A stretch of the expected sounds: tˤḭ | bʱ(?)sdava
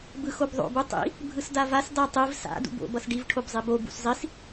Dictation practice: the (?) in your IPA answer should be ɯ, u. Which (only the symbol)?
ɯ